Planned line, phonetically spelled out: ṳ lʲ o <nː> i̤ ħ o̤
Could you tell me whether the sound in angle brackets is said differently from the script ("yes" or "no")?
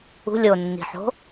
no